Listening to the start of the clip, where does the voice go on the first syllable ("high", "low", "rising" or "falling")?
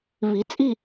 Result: rising